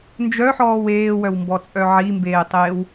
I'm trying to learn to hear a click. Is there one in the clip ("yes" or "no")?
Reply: no